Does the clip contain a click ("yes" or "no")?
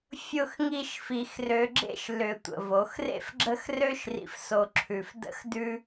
yes